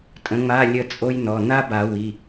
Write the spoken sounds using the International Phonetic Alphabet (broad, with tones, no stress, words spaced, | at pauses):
tʼə̃˨˥ŋ͡ma˧˥˧lʲə˦˨ t͡sʼo˥jnɔ˩˧˩ na˥ba˨˩˦ wi˩˧˩